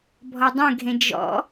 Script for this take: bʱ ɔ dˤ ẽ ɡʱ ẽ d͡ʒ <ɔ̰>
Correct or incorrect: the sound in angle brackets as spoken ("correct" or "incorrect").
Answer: correct